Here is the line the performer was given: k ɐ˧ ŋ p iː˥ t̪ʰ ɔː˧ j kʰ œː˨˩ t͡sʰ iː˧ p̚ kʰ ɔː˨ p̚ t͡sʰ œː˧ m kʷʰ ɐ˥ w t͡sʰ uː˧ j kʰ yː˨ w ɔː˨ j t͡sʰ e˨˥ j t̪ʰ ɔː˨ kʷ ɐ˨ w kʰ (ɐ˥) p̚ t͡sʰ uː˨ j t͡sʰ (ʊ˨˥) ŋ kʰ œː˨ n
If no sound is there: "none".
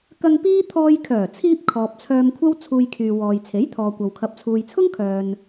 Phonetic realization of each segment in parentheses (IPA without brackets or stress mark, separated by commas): ɐ˨, ʊ˥